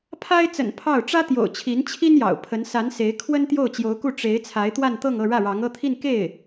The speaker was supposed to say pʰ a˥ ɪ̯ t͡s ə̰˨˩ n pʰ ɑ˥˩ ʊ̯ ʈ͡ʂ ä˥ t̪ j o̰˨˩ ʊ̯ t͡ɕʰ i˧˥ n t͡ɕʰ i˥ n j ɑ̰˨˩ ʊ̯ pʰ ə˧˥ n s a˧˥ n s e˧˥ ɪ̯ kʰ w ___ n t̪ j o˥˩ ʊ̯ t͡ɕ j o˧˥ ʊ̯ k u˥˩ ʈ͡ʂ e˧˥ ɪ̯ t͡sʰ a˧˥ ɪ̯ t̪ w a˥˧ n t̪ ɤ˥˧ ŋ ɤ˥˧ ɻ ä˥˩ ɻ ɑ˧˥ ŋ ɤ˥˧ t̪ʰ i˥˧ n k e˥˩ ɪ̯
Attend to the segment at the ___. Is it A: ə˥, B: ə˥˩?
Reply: A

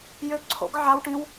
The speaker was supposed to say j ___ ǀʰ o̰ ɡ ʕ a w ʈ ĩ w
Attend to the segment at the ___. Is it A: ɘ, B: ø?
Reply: B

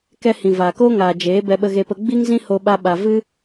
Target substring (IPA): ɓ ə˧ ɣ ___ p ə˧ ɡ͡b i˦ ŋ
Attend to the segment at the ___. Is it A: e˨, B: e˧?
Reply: B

